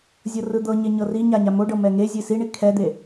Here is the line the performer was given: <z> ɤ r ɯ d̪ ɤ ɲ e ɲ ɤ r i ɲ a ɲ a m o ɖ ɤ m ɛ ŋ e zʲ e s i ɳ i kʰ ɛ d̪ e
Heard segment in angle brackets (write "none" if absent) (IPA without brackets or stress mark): zʲ